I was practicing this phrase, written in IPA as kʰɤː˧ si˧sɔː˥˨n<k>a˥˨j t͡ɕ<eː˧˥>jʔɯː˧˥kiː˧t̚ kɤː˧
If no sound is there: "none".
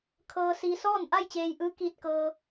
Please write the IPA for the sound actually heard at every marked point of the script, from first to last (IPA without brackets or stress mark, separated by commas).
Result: ʔ, eː˧